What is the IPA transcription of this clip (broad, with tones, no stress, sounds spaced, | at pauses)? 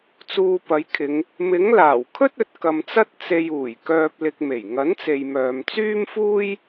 t͡s uː˧ p ɐ˨˥ j kʰ ɪ˨˧ ŋ | m ɪ˨˥ ŋ l aː˨˩ w kʰ ɵ˥ t̚ ɵ˨ t̚ k ɐ˧ m t͡s ɐ˥ t̚ t͡s e˨ j uː˨˩ j k œː˨ p̚ l ɪ˨ k̚ m e˨˩ j ŋ ɐ˨˥ n t͡s e˨ j m œː˨ m t͡s yː˥ m f uː˥ j